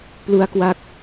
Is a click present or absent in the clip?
absent